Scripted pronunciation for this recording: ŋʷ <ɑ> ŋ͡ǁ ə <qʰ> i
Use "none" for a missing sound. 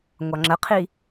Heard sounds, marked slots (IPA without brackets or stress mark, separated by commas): ɑ, qʰ